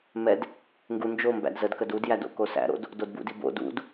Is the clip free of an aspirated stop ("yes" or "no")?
yes